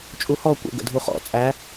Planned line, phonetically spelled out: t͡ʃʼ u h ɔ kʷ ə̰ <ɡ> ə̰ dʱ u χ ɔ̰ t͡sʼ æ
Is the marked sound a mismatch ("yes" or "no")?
no